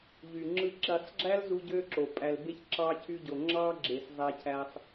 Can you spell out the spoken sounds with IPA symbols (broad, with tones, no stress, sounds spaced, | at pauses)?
ʎ y˨ ŋ͡ǁ ɯ˧ ǁ i˨ sˤ ɡ͡ǁ æ˦ l z u˧ ɟ ø˧ ǁ o˨ pʼ æ˨ l b e˧ ç ǁ ɑ˧ cʰ y˧ ɟ o˨ ŋ͡ǁ ɑ˧ ɡ͡ǁ e˨ s zˤ æ˧ cʰ æ˧ sˤ